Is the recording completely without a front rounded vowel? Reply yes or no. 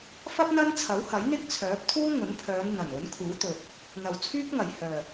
no